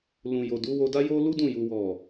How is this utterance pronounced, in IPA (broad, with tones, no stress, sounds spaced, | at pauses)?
l ũ˨ j o˨ d u˨˦ w o˧ d a˦ j o˦ l u˦ d ũ˦˨ j u˨ w ɔ˨